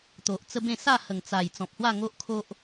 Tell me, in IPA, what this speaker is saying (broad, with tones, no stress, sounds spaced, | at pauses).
t̪ o˨ ʔ t͡s ə˦ b ẽ˥˧ s a˥˧ h ə˨˩ ŋ t͡s a˨˩ j t͡s ɔ̃˨ p̚ h w a˥˧ ŋ o˦ ʔ kʰ o˦ ʔ